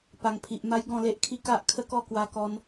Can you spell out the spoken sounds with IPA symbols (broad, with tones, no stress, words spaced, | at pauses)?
pa˨˩ŋpʰi˨ʔ ma˦jɡɔ̃˥˧le˦ʔ kʰi˦ka˦ʔ kʰə˦kɔ˥˧kwa˧ kɔ˧n